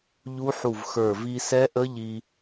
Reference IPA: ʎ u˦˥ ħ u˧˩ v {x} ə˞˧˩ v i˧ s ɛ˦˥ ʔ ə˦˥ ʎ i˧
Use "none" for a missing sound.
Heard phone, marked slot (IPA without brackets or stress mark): x